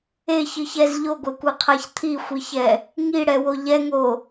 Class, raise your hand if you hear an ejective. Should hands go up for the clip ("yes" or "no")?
no